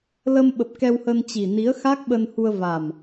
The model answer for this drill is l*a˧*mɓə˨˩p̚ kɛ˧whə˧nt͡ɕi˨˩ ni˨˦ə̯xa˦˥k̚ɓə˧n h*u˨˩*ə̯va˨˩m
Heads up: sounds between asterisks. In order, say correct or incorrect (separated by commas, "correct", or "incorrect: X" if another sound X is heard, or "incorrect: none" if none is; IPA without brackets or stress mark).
incorrect: ə˧, incorrect: u˧